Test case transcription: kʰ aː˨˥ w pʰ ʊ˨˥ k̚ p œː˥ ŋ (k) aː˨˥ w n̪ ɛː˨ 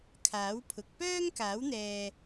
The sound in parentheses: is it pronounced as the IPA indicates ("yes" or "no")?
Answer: yes